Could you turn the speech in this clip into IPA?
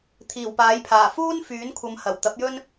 t̪ʰ iː˨˩ w p aː˨˥ j pʰ aː˨˩ f uː˥ n f yː˨˥ n kʷʰ ɐ˨˧ m h ɐ˨˩ w t̪ ɐ˨˥ p̚ j ɵ˥ n

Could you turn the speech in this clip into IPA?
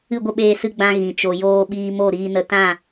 ɨ˦˨ ɡʷ ə˦ ɓ eː˧ s ɨ˧ ɡ͡b ã˧ ɣ ĩ˨ t͡ʃ o˨ j oː˧ ɓ iː˧ m o˦˨ ɾ iː˧ n ə˧ t ã˦˨

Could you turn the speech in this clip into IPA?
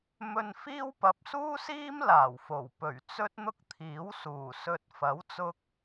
m ɵ˧ n f iː˥ w p ɐ˨ p̚ s uː˥ s iː˥ m l aː˨˩ w f o˨˩ w p ɵ˨˩ ɥ t͡s ɵ˥ t̚ n̪ ʊ˥ k̚ t̪ʰ iː˨˥ w s uː˨˩ s ɵ˨ t̚ f ɐ˨˥ w t͡s ʊ˧ k̚

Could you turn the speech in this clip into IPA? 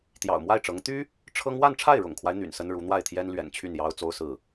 t̪ j ɑ̰˨˩ ʊ̯ m w a˥˩ ɪ̯ ʈ͡ʂ ɤ˧˥ ŋ t̪ y˥ | ʈ͡ʂʰ ɤ˥ ŋ w a˥˧ n ʈ͡ʂʰ a˥˩ ɪ̯ ɻ ʊ̰˨˩ ŋ kʰ w a˦ ɪ̯ n̪ y̰˨˩ n s ə˥ n ɻ u˧˥ n̪ w a˥˩ ɪ̯ t̪ʰ j ɛ˥ n l ɥ ɛ̰˨˩ n t͡ɕʰ y˥˩ n j ɑ˥ ʊ̯ t͡s o˥ ʊ̯ s ɹ̩˥˩

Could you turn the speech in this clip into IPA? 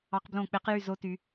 ɑ˦˥ q b l õ˥˧ k͡p e˦˥ q j y˥˧ z o˦˥ t y˦˥

